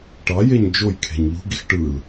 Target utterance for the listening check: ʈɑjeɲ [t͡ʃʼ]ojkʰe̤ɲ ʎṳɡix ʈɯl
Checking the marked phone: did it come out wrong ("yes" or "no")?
yes